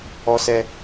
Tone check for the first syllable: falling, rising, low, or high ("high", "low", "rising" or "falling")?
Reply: high